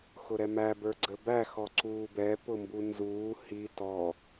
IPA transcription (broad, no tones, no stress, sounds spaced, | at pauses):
x ʊ ɾ ɛ m æ b ə˞ ɡ͡ǀ ə b æ x ɔ ǀ uː b ɛ p ʊ m b u n z uː h i t ɔ